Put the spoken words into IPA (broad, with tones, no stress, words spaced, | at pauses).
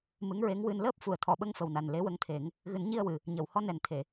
mɨ˧˥ŋɹe˧˥ŋwɨ˧n ləː˦˥p̚fu˨˩˨ə̯ t̪ʰɔ˨˩˨ɓə˧ŋfə˨˩wna˨˩n le˧˥wə˧˥ŋt̪ʰe˨˩˦ŋ | ɣɨ˨˩˦nɲi˧ə̯wɨ˨˩˨ | ɲə˨˩˨whɔ˧nɛ˨˩nt̪ʰe˨˩˨